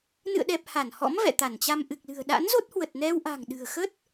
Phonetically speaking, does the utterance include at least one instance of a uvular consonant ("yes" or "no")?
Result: no